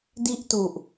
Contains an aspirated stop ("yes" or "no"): no